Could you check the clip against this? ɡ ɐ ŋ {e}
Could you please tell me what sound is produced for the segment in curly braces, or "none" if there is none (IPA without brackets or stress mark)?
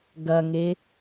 e